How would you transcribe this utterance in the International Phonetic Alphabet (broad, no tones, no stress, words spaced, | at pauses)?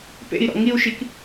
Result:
pḛi̯ɾɔ̰ ŋiu̯ʃik